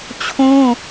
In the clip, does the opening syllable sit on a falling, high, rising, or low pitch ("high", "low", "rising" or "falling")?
high